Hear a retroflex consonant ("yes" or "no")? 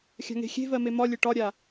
yes